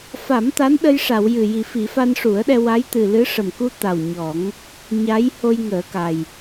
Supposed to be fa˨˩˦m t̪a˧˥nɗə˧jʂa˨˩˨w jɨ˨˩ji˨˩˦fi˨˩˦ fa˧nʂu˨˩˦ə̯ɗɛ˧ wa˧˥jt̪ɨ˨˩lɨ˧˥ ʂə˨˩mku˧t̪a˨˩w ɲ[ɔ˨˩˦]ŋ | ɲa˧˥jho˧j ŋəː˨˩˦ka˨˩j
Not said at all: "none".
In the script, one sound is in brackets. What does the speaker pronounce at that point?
ɔ˨˩˦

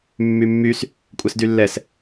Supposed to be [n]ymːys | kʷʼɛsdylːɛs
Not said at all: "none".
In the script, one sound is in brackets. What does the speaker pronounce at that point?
mː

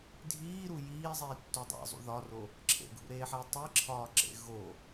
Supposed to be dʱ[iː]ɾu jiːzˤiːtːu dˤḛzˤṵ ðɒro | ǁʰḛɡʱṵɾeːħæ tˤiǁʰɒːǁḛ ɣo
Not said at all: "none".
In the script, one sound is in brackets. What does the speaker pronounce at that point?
iː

